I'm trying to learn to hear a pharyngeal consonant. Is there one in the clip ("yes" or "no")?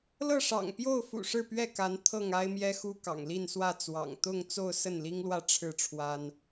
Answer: no